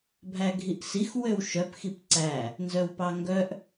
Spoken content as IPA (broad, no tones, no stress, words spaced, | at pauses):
bʱæɡʱiʔsix wøwʃœp xipǀæ | nzœwpɑŋɡœʔ